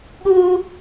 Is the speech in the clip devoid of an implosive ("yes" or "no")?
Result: no